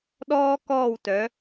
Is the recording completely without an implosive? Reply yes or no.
no